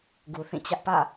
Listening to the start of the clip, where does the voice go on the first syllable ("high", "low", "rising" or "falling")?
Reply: low